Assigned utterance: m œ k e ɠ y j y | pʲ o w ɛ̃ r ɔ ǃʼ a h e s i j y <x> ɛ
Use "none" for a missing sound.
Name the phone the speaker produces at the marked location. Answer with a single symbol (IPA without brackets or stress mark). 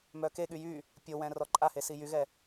ɣ